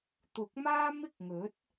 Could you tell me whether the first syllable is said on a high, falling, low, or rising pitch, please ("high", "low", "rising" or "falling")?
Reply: rising